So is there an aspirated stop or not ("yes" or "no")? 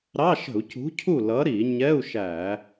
yes